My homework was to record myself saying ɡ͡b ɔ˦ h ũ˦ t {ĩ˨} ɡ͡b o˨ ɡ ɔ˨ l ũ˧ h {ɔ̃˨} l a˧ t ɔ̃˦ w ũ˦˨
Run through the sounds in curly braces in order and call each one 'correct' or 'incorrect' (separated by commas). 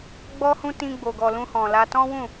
incorrect, correct